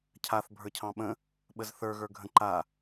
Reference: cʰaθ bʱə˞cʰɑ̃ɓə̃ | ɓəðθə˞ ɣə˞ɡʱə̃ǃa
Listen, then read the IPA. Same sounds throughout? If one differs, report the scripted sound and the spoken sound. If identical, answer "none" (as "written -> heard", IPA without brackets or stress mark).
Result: ð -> z